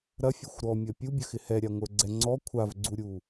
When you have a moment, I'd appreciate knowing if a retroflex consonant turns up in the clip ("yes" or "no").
no